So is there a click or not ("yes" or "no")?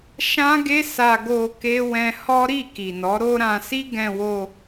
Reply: no